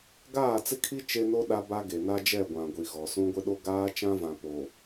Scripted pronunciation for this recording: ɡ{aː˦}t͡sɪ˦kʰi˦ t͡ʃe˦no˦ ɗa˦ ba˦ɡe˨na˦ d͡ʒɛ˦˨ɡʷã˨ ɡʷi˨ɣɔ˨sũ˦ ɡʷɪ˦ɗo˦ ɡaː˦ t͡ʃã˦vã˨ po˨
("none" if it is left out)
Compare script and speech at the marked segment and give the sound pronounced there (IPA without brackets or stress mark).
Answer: aː˦˨